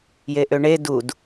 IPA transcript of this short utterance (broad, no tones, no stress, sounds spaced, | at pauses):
j e ʔ ø ɳ e d u d